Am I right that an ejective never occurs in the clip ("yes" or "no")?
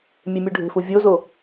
yes